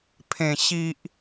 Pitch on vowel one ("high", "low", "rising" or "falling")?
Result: low